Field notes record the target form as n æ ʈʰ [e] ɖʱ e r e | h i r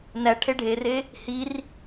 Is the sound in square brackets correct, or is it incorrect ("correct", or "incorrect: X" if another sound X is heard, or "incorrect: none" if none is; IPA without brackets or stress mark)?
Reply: correct